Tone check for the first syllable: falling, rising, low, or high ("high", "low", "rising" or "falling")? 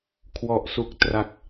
low